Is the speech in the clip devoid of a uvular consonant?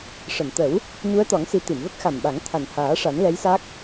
yes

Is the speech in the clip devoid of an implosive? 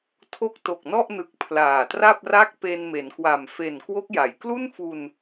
yes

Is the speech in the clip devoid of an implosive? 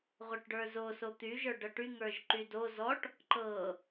yes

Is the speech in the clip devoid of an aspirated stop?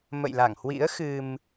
yes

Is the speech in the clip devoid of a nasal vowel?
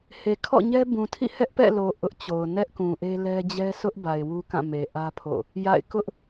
no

